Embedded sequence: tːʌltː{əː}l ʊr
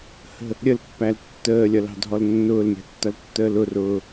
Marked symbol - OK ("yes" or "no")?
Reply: yes